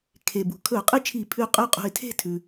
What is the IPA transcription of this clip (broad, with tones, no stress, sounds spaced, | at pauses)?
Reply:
kʰ e˩ b ṳ˩ kʰ ɵ˧˩˧ ʊ̯ qʼ ɨ˥˩ t͡ʃʰ i˧˩˧ pʰ ʉ˧˩ qʼ ʉ˥˩ qʼ ṳ˧˩ ɪ̯ tʰ e̤˥˩ tʰ ʉ˩